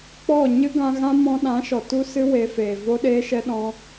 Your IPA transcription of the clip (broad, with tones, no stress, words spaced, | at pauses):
k͡pɔ˦˨ ɲɨ˦ɡã˧ɣã˦ mɔ̃˧ɗã˨˦ʃɔ˨ tu˦sɨ˦ we˧feː˨ vo˦ɗeː˦ʃɛ˦ ɗɔ̃˦